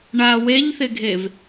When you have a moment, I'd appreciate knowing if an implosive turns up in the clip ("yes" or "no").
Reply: no